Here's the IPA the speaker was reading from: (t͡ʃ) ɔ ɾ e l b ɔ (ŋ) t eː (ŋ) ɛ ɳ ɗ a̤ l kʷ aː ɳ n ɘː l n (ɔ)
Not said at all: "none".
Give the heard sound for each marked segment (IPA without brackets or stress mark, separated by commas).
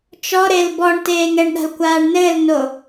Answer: t͡ʃ, ɳ, ŋ, o